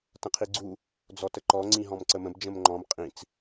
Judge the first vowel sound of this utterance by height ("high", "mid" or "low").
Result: mid